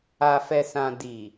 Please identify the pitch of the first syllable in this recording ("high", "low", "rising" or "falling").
low